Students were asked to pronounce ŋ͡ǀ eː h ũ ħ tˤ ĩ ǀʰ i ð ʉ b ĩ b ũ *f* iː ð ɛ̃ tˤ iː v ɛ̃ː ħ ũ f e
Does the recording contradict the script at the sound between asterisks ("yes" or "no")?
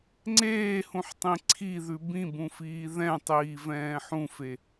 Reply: no